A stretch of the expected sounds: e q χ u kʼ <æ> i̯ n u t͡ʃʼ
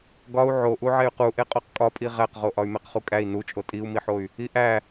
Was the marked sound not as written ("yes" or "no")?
no